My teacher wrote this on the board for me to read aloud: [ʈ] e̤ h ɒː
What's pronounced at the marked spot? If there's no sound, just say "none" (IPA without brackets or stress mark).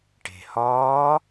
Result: ʈ